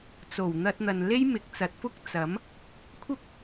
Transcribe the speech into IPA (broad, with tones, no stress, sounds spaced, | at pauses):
t͡s o˨˩ w n̪ ɐ˧ t̚ n̪ ɐ˨ n l e˥ j m ɪ˨˥ k̚ t͡s ɐ˨˥ t̚ f ʊ˥ k̚ t͡s ɐ˨˥ m | kʷʰ ɐ˥ p̚